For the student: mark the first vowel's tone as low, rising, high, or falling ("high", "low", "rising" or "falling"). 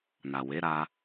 low